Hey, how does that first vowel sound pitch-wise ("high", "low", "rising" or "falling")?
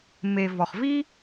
low